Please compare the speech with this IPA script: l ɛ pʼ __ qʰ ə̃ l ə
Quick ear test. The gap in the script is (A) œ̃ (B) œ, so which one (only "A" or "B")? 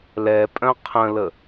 A